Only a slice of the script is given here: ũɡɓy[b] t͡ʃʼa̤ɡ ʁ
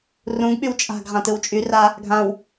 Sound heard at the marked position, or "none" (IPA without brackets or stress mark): w